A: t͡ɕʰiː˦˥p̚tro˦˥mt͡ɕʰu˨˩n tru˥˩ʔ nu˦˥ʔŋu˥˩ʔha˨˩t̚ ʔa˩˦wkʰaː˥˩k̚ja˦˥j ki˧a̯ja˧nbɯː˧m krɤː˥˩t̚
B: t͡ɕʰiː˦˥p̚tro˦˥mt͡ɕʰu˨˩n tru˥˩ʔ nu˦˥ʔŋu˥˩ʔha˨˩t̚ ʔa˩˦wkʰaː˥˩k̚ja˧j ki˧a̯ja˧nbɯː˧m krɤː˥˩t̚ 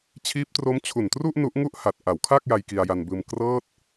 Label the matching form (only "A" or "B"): B